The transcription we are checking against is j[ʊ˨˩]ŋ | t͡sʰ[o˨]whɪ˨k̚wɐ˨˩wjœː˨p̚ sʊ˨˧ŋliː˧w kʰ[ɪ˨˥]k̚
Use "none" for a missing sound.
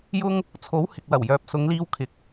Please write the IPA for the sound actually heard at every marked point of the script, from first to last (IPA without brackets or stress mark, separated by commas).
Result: ʊ˥, o˨˥, ɪ˨˥